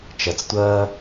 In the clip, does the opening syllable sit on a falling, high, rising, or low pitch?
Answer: low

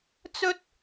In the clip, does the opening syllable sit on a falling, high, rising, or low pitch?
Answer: high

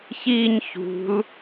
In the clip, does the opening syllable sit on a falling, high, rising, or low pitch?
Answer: falling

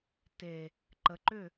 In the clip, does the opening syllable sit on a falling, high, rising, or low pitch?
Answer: low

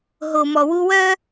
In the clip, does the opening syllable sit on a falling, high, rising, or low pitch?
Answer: low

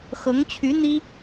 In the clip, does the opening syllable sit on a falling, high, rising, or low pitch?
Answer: rising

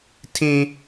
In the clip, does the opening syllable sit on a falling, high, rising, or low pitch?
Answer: high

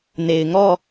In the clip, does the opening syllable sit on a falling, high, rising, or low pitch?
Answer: low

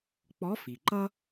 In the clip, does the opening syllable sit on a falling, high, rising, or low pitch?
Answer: rising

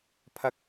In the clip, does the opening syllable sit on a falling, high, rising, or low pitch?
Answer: rising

